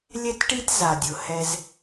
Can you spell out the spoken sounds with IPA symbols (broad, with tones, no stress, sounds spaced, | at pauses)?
lʲ ɛ˦ t ʈ i˦ t z a˨ dʲ ʊ˨ h ɛ˦ z